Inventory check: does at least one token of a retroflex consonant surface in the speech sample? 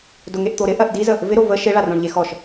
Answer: yes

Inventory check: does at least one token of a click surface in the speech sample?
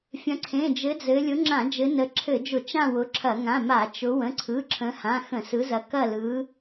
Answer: yes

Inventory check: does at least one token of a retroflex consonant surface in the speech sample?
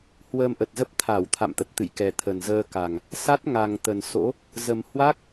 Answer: no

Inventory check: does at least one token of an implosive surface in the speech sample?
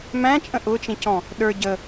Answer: yes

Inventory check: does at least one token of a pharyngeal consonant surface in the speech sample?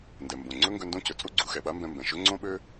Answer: no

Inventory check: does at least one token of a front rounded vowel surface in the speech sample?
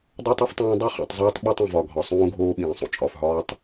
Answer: no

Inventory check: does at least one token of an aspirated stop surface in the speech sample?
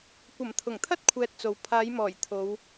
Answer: yes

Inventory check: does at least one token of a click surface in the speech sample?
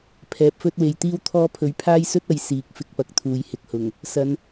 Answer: no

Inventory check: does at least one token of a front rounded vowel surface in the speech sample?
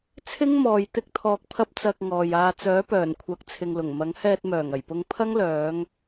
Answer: yes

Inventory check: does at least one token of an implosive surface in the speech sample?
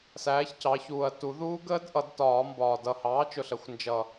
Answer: no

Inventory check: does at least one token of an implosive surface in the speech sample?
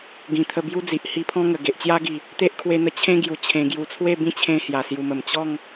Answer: no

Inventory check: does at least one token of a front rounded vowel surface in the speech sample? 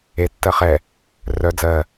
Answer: yes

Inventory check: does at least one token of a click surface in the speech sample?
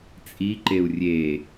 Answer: yes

